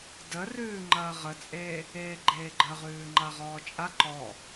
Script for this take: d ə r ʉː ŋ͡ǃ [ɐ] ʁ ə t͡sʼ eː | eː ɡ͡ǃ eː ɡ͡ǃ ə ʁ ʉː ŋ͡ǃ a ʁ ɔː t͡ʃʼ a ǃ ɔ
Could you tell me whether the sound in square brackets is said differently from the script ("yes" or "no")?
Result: yes